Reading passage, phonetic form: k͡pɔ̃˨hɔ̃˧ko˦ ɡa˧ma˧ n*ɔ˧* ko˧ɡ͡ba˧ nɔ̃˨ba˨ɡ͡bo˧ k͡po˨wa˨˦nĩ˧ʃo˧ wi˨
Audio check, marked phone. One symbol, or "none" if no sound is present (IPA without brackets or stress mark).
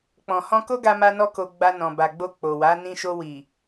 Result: ɔ˧